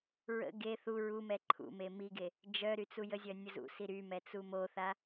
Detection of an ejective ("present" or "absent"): absent